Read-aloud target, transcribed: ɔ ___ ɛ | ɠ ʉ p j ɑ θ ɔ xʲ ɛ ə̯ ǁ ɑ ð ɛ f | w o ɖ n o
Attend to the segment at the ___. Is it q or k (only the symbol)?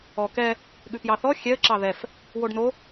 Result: k